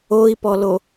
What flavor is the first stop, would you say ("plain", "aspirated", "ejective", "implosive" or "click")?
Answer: plain